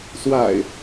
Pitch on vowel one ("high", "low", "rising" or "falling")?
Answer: low